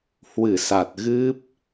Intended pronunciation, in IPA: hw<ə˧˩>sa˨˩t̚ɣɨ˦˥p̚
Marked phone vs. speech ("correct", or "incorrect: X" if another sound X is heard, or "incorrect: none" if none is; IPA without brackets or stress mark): incorrect: ɨ˧˩